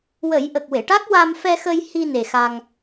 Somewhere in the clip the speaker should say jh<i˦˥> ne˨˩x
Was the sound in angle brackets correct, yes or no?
no